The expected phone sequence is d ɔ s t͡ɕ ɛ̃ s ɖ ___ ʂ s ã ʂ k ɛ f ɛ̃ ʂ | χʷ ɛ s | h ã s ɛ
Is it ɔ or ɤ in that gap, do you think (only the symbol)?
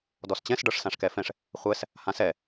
ɤ